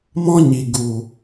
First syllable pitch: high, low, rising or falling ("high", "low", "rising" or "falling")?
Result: high